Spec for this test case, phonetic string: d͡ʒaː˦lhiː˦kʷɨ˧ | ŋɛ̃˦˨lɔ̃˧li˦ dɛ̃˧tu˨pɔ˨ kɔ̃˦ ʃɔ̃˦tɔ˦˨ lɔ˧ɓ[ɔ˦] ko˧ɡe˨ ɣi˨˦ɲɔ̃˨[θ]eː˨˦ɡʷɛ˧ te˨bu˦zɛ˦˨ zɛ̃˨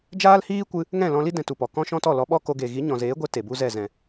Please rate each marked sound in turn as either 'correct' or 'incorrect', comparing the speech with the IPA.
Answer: correct, incorrect: z

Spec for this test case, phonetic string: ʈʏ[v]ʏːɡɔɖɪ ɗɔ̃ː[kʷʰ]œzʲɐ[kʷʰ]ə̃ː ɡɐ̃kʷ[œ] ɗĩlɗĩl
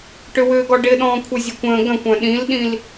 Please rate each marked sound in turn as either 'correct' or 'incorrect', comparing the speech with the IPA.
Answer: incorrect: w, correct, incorrect: kʷ, incorrect: œ̃

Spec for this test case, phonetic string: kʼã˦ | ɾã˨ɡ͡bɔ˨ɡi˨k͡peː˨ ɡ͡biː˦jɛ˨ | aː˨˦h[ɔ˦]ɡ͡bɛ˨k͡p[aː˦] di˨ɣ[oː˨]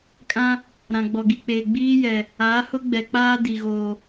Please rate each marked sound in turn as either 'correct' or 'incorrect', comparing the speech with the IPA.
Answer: incorrect: ʊ˦, correct, correct

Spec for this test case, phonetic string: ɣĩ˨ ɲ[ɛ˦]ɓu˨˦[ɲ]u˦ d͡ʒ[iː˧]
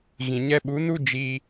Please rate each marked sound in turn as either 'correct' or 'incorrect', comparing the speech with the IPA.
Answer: incorrect: ɛ˧, incorrect: n, correct

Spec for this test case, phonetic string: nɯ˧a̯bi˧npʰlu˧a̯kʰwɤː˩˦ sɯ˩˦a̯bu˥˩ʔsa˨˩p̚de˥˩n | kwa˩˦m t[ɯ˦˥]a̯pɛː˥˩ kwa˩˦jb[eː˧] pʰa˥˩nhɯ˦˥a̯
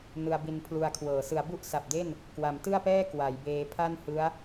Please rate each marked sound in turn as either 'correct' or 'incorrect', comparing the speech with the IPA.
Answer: incorrect: ɯ˥˩, correct

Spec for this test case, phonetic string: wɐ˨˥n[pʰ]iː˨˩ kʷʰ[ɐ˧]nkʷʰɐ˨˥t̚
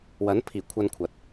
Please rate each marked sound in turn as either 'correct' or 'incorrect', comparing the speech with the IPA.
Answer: correct, correct

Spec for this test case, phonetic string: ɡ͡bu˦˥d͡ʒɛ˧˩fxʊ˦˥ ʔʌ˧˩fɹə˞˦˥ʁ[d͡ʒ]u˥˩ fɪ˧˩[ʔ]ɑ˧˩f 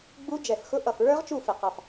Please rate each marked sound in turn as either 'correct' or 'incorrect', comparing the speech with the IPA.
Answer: incorrect: t͡ʃ, incorrect: q

